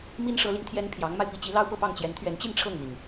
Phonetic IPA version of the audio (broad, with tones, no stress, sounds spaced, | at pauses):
m i˥ n ʂ ɤ˧˥ l i˧ ŋ t̪ʰ j ɛ˥ n pʰ j ɑ˧˥ ŋ m a˧ ɪ̯ p i˧˥ t͡ɕ i˧˥ l ɑ˥ ʊ̯ p ɤ˥˧ p ɑ˥˩ ŋ t͡ɕ j ɛ˧˥ n t̪ʰ ɥ ɛ˧˥ n t͡ɕ i˥˧ n ʈ͡ʂʰ ɤ˥˩ ŋ n̪ i˩ ŋ